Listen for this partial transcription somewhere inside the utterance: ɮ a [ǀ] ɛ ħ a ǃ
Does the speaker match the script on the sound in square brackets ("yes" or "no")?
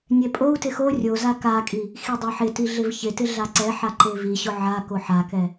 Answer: yes